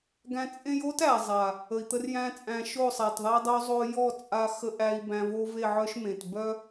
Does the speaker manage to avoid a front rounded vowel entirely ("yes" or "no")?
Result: no